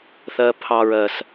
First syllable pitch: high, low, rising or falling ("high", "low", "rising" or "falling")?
low